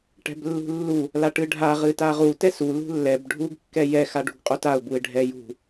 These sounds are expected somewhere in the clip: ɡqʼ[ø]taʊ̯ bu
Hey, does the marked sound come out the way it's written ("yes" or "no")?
no